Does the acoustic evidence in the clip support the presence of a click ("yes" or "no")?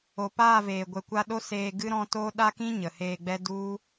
no